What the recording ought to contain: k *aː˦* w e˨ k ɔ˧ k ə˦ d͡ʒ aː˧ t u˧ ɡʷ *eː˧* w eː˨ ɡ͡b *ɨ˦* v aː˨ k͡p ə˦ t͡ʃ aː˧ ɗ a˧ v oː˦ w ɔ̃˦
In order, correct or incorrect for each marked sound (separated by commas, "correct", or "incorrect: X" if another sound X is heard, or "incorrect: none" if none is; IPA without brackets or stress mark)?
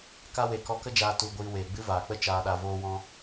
incorrect: a˦, incorrect: iː˧, correct